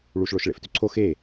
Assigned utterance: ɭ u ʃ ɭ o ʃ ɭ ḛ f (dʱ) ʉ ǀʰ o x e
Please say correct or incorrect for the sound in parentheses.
incorrect